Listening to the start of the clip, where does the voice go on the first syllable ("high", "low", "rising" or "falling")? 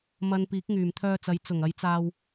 low